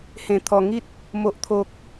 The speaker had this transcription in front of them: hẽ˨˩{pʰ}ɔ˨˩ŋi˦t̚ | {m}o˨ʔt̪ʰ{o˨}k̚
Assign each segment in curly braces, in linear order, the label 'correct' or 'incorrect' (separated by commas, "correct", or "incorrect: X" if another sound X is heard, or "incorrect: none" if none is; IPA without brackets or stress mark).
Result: incorrect: t̪ʰ, correct, correct